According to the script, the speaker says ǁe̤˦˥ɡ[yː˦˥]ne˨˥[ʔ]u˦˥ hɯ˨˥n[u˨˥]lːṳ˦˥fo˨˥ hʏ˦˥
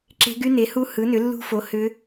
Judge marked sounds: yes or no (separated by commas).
no, no, no